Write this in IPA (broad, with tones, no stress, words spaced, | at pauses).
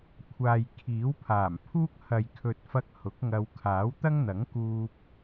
kʷʰaː˨jkʰiː˨˥wpʰaː˨˩mpʰuː˥k̚ hɐ˨jkʰɵ˨t̚fɐ˧k̚ hʊ˨˥k̚ŋɐ˧w kʰaː˨˥wt̪ɐ˥ŋ n̪ɐ˨˥ŋkuː˧p̚